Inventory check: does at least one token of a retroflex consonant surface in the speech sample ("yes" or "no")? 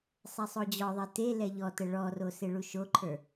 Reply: yes